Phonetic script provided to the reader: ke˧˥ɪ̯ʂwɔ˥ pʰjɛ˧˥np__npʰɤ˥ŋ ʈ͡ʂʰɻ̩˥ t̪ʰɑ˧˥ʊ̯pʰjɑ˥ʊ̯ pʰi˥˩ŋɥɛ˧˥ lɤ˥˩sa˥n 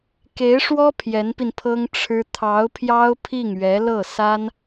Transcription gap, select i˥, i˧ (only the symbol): i˧